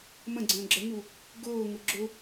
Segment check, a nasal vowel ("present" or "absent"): present